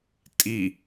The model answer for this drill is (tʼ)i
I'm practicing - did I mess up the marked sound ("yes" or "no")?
no